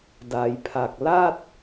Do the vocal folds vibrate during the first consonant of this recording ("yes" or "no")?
yes